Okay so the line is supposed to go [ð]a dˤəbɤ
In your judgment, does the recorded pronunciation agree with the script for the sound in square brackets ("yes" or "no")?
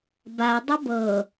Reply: no